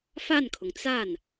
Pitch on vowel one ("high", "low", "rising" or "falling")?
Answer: falling